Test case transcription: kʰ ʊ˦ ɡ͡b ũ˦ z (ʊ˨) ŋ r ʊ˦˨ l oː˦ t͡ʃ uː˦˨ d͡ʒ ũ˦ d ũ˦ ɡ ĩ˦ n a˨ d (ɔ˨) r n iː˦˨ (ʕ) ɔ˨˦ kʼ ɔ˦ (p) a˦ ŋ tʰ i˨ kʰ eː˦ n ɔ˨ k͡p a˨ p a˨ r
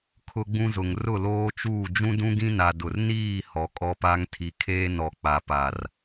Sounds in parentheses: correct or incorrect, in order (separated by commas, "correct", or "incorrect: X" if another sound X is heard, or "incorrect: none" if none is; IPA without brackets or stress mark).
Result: correct, incorrect: ʊ˨, incorrect: h, correct